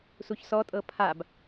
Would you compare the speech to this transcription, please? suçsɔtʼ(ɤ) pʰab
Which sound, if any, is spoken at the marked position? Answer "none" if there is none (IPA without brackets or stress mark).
ɤ